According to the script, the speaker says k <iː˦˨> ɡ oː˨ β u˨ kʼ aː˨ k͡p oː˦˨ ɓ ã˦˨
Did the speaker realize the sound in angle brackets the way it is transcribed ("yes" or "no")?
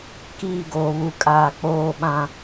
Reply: yes